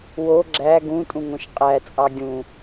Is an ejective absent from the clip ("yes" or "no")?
no